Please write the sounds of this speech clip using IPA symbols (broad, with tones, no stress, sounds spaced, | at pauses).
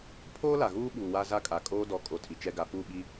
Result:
pʰ oː˦ l a˨ ɣ uː˦ ɓ uː˨ w a˦ z a˦ kʼ a˨ kʼ oː˦ d ɔ˨ kʼ o˨ tʰ i˨ t͡ʃ ɛ˦ ɡ a˨ f u˦˨ ɓ i˦